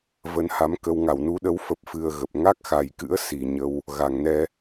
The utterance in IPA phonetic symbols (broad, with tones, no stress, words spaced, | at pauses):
və˨˦nha˨˦mkə˧w ŋa˧˩wnu˨˦ɗə˨˦w fə˦˥p̚fɨ˧ə̯ɣə˨˩p̚ ŋa˦˥k̚xa˨˩jkɨ̰˧˥ə̯ si˨˩ ɲə˧w | ɣa˨˩ŋnɛ˧